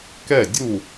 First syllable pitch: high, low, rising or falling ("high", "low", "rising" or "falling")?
falling